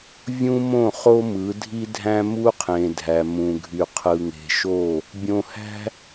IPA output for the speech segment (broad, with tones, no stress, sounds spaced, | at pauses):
vʲ ũ˦ m õ˦˨ χ o˦ m ɯ˨˦ dʱ i˦ dʱ æ̃˦ m u˦ qʰ ẽ˨ dʱ æ˨ m ũ˨ ɡʱ y˨ qʰ ɯ˨ ŋ e̤˨ ʃ o˦˨ | bʲ õ˨ h æ̤˦